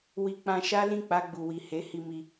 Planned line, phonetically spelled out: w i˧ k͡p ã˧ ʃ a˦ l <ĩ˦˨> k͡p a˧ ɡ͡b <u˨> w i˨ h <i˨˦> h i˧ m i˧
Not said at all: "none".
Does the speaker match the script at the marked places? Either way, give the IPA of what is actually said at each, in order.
ĩ˦˨, u˨, e˨˦

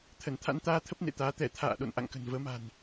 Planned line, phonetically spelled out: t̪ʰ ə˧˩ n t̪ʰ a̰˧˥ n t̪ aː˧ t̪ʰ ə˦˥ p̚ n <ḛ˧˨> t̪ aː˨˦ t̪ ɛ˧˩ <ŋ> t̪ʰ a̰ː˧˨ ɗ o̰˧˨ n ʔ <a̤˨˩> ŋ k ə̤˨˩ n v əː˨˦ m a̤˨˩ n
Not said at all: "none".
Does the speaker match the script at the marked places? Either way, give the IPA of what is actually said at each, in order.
ḛ˧˨, none, a̰˧˨

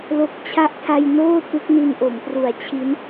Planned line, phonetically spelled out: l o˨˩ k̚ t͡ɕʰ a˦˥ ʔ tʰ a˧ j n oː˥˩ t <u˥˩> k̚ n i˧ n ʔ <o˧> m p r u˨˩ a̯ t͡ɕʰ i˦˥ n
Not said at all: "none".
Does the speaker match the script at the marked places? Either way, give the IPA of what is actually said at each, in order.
u˦˥, o˩˦

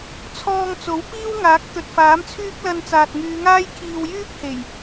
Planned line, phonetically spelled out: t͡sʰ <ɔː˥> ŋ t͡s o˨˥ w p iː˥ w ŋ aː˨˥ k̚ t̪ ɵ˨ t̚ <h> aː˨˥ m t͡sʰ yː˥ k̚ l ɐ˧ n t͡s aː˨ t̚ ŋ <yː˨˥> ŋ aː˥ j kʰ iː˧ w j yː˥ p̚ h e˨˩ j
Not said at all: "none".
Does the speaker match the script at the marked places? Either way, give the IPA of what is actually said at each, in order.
ɔː˧, f, yː˨˧

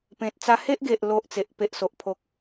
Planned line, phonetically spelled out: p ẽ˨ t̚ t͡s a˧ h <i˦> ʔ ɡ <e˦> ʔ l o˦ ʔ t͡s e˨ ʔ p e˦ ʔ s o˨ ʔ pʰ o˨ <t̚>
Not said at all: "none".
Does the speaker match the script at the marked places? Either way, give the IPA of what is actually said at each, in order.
e˦, e˨, k̚

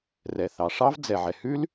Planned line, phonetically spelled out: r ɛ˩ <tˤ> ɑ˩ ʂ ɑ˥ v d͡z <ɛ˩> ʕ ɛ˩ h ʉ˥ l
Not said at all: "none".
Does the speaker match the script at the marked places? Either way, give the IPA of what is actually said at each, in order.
θ, ɛ˩

